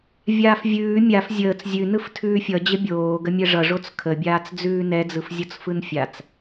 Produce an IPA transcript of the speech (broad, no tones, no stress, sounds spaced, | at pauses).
vʲ aː f vʲ ʉː mʲ a f zʲ əː t͡s zʲ ʉ n ɯ f tʰ ʉː fʲ ʌ d͡ʑ ə bʲ oː ɡ ə mʲ ɛ ʐ ʌ ʐ o t͡s kʰ ə bʲ aː t͡s d͡z ʉː n ɛ d͡z ɯ f zʲ o t͡s f ɯ n fʲ a t͡s